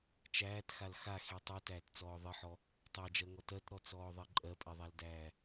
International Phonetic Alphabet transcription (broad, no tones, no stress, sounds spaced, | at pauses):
t͡ʃ æː t x a l x a x i tˤ i t æː t t͡s ɔː ðˤ ɘ ħ ɔ | tˤ æ d͡ʒ ɜ ŋ ɔ t ɜ t ɾ ɔ t͡s ɔː ðˤ i ǃʼ ɜ pʼ e ðˤ æ l d æː